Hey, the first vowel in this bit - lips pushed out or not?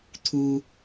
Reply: yes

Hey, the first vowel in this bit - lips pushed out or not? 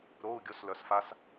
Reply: yes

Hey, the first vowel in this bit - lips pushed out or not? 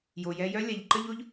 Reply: yes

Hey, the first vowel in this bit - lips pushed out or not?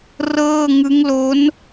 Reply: no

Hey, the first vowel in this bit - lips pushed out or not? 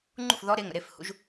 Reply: yes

